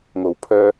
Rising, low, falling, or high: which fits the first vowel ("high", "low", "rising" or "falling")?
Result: low